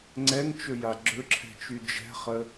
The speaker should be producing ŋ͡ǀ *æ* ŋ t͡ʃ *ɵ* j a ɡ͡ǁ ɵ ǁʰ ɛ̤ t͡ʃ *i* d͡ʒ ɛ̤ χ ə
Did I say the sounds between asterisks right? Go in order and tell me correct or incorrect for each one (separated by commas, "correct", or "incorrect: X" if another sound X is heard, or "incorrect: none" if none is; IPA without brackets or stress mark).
incorrect: ɛ, correct, incorrect: y